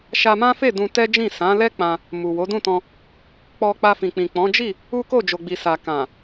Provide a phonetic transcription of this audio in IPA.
ʃa˧mã˦fe˦˨ dũ˧tɛ˦d͡ʒĩ˦˨ sã˨˦lɛ˦ k͡pã˧ | mu˨wo˨˦dũ˦˨tɔ̃˧ | k͡pɔ˧k͡pa˧fĩ˨k͡pĩ˨ k͡pɔ̃˨˦d͡ʒi˦˨ | u˦ko˦˨d͡ʒo˨ɡ͡bi˨ sa˨kã˨

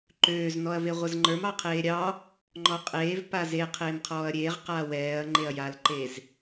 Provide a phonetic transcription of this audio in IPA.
ǃøːz nɔɐ̯veʁʷəzŋ͡ǃə˞m ɑqʰeːɾʲɑ | ŋ͡ǃɔqʼeːv paze qʰeːmqʰɔːɐ̯ɾʲeːʁ qaːwɛːɐ̯ ŋ͡ǃeɐ̯jalǃez

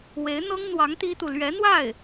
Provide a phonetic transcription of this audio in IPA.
we˧˥ɪ̯n̪ɤ˥ŋn̪wɑ˧˥ŋ t̪i˥t̪u˨ lɥɛ˧˥n̪wa˥˩ɪ̯

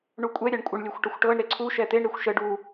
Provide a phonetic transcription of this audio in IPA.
ɳukʷʼɛ ɾʲaɳkʷʼəɳ lʲɤxʷʈəxʷʈɤɳ ɾeǀʰu ʃɛt̪eɳ ɾexʷʃə ɖu

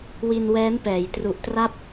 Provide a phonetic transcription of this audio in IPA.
wi˧nwɛː˦˥npɛː˩˦j tru˨˩ʔtra˥˩p̚

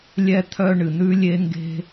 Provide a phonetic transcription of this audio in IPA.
lʲɛ˥t̪ʰœ˥ ɳɨ˩n̪ʉ˥lʲe˥ŋɡe̤˥

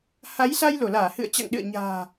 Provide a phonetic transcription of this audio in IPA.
ha˨˦jsa˧j lo˧˩laː˧˩hɨ̰˧˨ə̯t͡ɕa̰˧˨ŋ ɗɨ̰˧˨ə̯ɲa̤ː˨˩

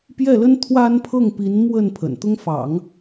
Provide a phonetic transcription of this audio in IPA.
pjɛ˥˩lə˥n t̪ʰwa˥npʰɤ˥˩ŋpi˧˥n mwə˥˩n pʰə̰˨˩nt̪ʊ˥ŋ fɑ̰˨˩˦ŋ

